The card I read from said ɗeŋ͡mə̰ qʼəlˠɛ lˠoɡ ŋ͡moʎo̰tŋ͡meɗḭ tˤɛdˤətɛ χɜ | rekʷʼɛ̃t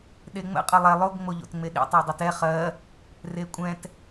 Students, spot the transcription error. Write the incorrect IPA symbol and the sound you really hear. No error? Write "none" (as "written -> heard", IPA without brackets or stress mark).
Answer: none